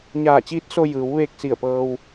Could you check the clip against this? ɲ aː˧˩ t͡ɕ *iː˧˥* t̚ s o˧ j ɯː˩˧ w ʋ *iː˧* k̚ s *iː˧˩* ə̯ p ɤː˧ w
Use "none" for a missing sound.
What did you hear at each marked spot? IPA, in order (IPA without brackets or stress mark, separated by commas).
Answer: iː˧˥, eː˧, i˧˩